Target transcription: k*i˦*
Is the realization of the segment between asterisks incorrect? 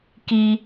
no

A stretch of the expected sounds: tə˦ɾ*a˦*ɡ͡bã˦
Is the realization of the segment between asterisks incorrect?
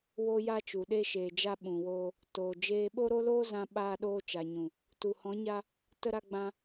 no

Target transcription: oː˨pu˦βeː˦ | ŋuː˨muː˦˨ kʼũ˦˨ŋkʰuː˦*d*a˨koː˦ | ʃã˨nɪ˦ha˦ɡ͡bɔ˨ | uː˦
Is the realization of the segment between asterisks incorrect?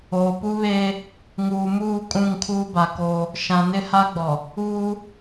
yes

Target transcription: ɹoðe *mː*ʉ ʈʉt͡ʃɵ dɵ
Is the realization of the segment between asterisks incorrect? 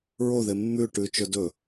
no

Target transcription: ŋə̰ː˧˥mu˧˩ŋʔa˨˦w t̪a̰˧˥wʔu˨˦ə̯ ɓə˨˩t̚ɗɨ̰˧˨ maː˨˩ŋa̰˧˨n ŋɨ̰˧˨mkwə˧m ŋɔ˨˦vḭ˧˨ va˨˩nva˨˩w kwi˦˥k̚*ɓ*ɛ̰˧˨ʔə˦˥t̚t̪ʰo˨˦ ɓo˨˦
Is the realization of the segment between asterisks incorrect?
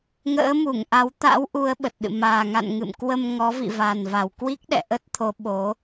yes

